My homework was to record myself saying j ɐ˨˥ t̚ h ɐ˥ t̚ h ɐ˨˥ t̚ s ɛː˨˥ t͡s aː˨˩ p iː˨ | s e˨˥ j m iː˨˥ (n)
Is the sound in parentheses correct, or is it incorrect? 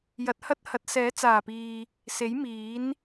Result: correct